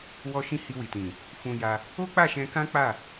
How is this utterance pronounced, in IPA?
wɔ˧ʃĩ˧ hi˧wi˨tĩ˨ | fũ˧ja˧ | o˦k͡pa˦˨ʃɛ̃˧kã˦ k͡pa˦˨

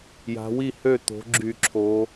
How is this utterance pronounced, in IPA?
ja̤˩˧wi˥˩hø˥˩ t̪o̤˩˧ɡ͡ǁy˧˩˧ǁʰo˩˧

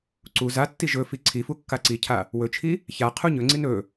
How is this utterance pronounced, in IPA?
ǀu zatːi ʒɵfi ǀʰifu kːaǀicʰa | wɵt͡ʃʰi | ça qʰuɲɵŋ͡ǀin ɵ

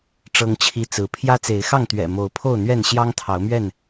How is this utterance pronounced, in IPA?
ʈ͡ʂɤ˦ŋt͡ɕʰi˦t͡sɹ̩˨˦ pʰjä˦t͡se˨˦ɪ̯xɑ˥˨ŋt̪ɥɛ̰˨˩ mo˨˦ʊ̯pʰo˥˨ʊ̯n̪ɥɛ˥˨n ɕjɑ˦ŋt̪ʰɑ˨˦ʊ̯mɥɛ˥˨n

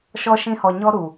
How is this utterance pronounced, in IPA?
ʃɔ˦ʃĩ˦hɔ˧ɲɔ˦ ɾu˨

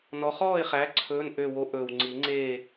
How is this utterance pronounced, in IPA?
nɔ˨˥ χɔː˥˨ɪ̯χæ˨˥ ǀʰɵː˧˥˧n ʔø˥˨wo˥ ʔɵː˨w ŋ͡ǀi˨˩˦ ŋ͡ǀeː˥˨

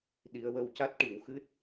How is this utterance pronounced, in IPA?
ɗi˨˩˦ə̯wə˧w ca˦˥t̚ʈi˨˩˨wxɨ˦˥t̚

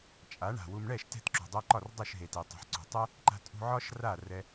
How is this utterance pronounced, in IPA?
t͡ʃʼa˩˥ɳa̤˩wu˧m ɳɛ˥˩ʃ tɛ̤˥˩tǁṳ˩dˤɛ˧ǃɒ˥˩r dˤə˞˥˩ʃɦe˩te˩ tˤṳ˩ħǀṳ˩tˤɛ˥ | ǃa̤˧ tʼṳ˧ʕɒ˥ʃ ra˥˩rɛ˧

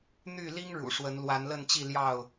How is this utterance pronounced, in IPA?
n̪y˥˨ li˦ŋ ɻṵ˨˩ʂwə˨˦n lwa˨˦nlə˥˨nt͡ɕi˥˨ ljɑ˥˨ʊ̯

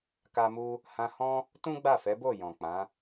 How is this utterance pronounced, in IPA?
ka˧mu˦ | hã˧hɔ̃˦ | tũ˦ɡ͡ba˦˨fɛ˨˦bo˦˨ jɔ̃˨k͡pã˨˦

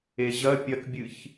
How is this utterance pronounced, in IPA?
eʑɐ pʲɐkbʲɨç

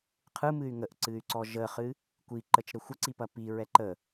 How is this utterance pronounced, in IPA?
qʰɯmɨy̯ ŋəʔǀɨy̯ǀɔ ʒəχɨ | kʷiǃət͡ʃɾə xʷəǀipɐ piɹɛ ǃə

